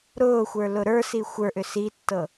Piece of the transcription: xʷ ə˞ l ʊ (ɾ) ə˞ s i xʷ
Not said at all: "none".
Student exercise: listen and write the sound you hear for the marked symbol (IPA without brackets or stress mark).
ɾ